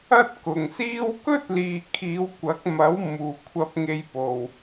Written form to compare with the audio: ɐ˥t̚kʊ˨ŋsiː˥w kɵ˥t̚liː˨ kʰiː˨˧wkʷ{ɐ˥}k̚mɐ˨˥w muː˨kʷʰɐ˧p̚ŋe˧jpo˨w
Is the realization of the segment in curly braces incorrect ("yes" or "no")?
yes